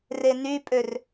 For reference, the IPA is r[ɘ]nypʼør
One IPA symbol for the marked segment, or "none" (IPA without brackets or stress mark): e